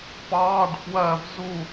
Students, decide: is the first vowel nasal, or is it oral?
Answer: oral